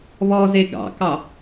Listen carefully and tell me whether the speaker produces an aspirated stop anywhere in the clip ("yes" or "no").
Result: no